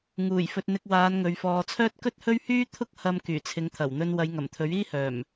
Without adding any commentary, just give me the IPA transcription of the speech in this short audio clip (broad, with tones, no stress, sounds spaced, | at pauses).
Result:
ŋ uː˨˩ j f ɵ˨ t̚ n̪ ɪ˧ k̚ w aː˨˧ n ŋ ɵ˨ ɥ f ɔː˨ t͡sʰ œː˥ t̚ k ɵ˥ t̚ h ɵ˥ ɥ h yː˥ t̪ʰ ʊ˥ k̚ h ɐ˧ m k yː˨˩ t͡sʰ ɪ˨˧ ŋ t̪ʰ ɐ˨˩ w n̪ ɵ˧ n w ɐ˨˧ j ŋ ɐ˨˩ m t̪ʰ ɵ˨˥ ɥ iː˥ h œː˨˩ m